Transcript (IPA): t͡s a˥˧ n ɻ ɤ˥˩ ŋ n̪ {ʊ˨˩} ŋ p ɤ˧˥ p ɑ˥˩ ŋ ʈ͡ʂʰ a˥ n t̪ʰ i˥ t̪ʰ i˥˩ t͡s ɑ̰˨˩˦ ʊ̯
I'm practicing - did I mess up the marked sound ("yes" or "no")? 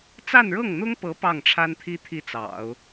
yes